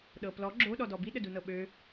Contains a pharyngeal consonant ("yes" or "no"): no